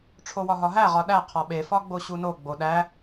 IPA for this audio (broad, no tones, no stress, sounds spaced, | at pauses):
ʈ͡ʂʰ o w ɒ ɦ ɒ ɦ æ ʁ ɒ ɗ æ qʰ ɒ ɓ e f ɒ ɡ͡b o ɕ u n o ɡ͡b o ɗ æ